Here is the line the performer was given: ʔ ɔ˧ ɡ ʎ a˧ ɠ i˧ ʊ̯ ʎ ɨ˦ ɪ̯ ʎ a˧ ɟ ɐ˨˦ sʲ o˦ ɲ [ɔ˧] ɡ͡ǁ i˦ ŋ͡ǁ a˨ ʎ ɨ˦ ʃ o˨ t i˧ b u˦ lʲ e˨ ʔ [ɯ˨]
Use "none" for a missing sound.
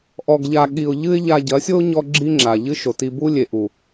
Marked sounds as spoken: ɔ˦, u˨

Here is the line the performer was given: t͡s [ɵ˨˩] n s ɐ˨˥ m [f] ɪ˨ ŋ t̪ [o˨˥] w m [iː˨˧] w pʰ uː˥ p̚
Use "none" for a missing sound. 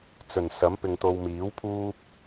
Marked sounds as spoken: ɵ˨˩, p, o˨, iː˨˥

